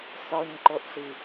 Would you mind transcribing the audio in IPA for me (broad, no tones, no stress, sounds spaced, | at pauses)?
s ɔ ɲ ǃ o ʔ ɬ i